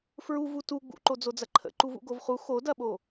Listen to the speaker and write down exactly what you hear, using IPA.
f ɹ u v u t u ɡ͡b ṵ ǃ o d͡z o d͡z ɐ ǃʰ ə̰ ǃ u v ṵ ɡ o v χ u x o d ɐ ɓ o

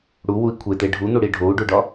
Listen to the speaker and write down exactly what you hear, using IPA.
ɽ u w u i̯ kʷʰ e t̪ e ɖʱ u n̪ u ɽ i ɖʱ o u̯ ɖ u ɖ ɒ

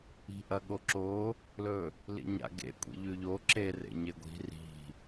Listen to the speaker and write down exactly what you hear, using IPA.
i̤ ʔ ɐ ɠ o ǁ o | l ɵ | l ḭ ɲ a̰ ɡ ḛ kʷʼ ḭ ʎ ʉ ʎ o ǁ e r ḛ ɲ e ɡʷ i̤ r i̤

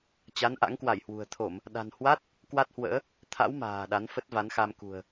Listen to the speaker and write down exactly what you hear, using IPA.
t͡ɕ a˨˦ n ʔ a̰˧˥ ŋ k w a˧˩ j h w ṳ˨˩ ə̯ t̪ʰ o˧˩˨ m | ɗ a̤˨˩ n h w a˦˥ t̚ | k w a˦˥ t̚ h w ə̰ː˧˥ | t̪ʰ a̰˧˥ w m a̤ː˨˩ ɗ a˨˦ n f ə˦˥ t̚ v a˨˦ n x a˧ m k ṳ˨˩ ə̯

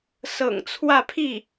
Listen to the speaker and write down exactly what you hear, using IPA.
s ɤ̰˨˩ ŋ t͡sʰ w ä˥˧ pʰ i˥˩

